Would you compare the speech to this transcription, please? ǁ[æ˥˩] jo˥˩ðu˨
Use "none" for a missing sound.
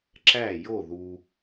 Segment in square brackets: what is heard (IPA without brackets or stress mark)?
æ˥˩